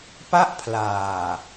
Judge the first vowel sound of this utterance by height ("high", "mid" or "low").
low